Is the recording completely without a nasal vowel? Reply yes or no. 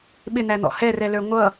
yes